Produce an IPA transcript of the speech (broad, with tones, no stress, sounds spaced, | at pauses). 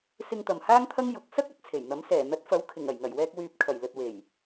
s ɪ˧ ŋ t̪ ɐ˨ m h aː˥ ŋ t̪ʰ ɐ˥ ŋ j ʊ˨˥ k̚ s ɐ˥ k̚ ɐ˨ t̚ t͡sʰ e˨˩ j n̪ ɐ˨˥ m s ɛː˨˩ n̪ ɐ˨˥ t̚ f ɐ˨˥ w kʰ ɪ˨˩ ŋ ɐ˨˩ j ŋ ɐ˨˩ j w ɛː˧ k̚ w yː˨ p̚ kʰ ɐ˨˩ j l ɵ˨ t̚ w e˨˩ j